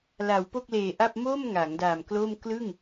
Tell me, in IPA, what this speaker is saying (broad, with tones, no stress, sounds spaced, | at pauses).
l a˩˦ w p o˥˩ k̚ l eː˨˩ ʔ a˥˩ p̚ m o˥˩ m ŋ a˩˦ ŋ d a˨˩ m k l o˥˩ m k l ɯ˥˩ ŋ